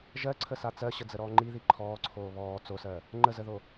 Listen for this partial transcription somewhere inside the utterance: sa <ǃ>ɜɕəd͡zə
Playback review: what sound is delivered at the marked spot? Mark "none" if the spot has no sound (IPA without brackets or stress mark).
t͡s